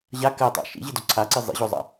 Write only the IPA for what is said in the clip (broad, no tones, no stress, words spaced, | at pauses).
ʑa kɜtˤa̰ ʃḭʑido ǀʰaǀi zˤḭʑozˤa̰